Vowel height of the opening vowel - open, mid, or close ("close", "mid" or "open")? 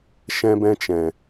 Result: mid